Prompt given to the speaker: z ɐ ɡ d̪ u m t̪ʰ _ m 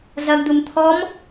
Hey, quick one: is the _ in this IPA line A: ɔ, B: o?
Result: A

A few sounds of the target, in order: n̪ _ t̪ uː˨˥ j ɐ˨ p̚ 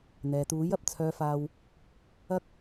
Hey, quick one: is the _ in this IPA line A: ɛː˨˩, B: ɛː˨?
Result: B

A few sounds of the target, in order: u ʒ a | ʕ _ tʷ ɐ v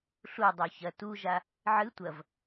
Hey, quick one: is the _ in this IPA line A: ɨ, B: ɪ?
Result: A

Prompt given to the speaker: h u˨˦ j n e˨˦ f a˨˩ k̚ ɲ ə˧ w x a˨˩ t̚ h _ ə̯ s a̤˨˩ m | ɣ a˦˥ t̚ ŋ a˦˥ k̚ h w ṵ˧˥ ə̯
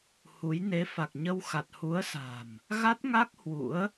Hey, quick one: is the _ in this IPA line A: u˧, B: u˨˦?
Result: B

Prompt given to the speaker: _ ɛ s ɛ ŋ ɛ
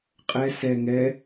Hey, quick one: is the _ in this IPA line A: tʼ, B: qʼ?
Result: B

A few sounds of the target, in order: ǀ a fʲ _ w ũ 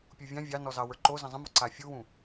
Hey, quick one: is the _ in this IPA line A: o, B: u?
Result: B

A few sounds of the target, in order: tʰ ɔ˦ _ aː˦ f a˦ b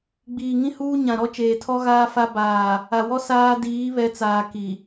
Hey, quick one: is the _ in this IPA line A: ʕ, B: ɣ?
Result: B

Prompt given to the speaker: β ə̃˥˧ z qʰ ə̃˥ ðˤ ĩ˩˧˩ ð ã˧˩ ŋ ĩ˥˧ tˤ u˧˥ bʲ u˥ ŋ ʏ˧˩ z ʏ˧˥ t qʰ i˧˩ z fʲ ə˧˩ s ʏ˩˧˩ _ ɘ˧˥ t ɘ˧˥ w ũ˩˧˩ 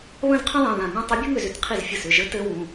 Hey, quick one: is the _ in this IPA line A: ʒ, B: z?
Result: A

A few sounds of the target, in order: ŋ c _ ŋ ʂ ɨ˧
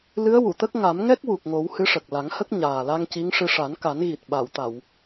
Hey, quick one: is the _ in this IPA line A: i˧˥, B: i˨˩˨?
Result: A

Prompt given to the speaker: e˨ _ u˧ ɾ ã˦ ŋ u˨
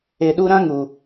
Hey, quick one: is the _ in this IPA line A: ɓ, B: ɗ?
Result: B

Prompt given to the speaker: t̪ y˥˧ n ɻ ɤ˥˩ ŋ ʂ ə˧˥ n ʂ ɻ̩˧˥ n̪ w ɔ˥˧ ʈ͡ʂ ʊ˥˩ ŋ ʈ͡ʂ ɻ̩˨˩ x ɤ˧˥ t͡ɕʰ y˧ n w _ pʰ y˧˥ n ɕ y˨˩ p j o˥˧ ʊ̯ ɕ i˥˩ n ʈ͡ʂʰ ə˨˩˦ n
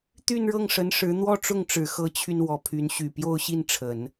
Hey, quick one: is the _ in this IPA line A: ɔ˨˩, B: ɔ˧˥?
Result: B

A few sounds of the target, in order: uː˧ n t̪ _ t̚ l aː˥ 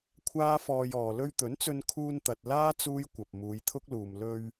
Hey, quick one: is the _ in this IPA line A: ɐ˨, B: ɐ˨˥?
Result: A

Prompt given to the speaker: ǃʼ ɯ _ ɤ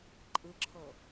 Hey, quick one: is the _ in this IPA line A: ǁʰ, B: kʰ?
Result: A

